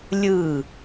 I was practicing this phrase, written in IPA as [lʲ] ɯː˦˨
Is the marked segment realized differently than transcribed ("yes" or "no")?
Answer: no